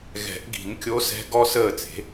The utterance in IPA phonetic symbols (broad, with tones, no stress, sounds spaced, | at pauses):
ɣ ɛ̤˨˩˦ ʔ ɡ i̤˨˩˦ n kʲ o˧˥ s ɛ̤˧˥ ɡ ɔ˥ s əː˥˨ t͡s e̤˩˥